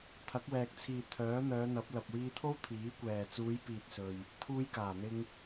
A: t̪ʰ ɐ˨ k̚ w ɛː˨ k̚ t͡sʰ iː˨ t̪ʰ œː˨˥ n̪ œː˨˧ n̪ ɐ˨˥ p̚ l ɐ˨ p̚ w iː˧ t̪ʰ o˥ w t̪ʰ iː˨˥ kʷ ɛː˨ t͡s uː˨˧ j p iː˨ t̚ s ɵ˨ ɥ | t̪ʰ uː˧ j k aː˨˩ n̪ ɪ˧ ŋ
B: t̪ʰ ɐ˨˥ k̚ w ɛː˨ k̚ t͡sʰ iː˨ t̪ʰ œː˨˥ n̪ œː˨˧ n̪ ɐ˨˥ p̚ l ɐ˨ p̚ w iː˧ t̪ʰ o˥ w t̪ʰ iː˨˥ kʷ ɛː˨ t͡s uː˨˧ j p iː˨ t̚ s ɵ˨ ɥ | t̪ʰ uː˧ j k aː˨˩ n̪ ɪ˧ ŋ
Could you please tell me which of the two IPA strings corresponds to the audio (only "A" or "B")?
B